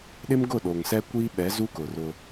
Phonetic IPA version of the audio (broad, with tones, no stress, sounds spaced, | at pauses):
ɗ ɪ˦ m ɡ ʊ˦˨ ɗ o˨ ŋ s ɛ˦ kʷ iː˦ ɓ ɛ˨˦ z u˦ k ʊ˨ r ʊ˦